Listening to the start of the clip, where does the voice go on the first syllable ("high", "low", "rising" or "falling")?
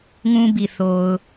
high